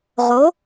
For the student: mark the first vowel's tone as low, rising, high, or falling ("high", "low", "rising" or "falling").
rising